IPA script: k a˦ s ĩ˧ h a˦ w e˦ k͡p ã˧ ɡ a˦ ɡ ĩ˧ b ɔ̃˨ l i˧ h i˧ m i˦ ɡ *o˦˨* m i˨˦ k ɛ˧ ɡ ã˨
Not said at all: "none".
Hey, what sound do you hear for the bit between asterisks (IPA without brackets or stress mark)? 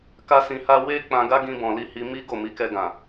o˦˨